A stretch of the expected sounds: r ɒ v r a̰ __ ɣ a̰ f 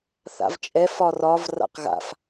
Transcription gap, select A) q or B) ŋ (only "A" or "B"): A